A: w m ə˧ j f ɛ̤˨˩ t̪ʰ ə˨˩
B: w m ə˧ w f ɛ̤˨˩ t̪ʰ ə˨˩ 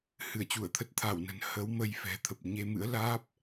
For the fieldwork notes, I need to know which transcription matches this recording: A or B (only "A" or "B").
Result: A